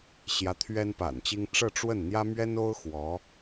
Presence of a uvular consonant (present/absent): absent